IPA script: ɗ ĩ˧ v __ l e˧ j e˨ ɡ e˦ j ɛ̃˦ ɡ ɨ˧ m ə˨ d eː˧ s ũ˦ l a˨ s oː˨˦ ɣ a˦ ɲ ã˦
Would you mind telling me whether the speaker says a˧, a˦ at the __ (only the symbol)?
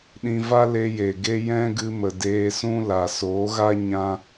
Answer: a˦